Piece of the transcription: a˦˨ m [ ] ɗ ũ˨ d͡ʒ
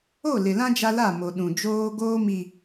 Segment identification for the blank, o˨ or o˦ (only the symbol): o˨